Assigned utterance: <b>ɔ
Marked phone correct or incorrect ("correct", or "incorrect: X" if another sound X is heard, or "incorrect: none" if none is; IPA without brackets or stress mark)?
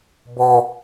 correct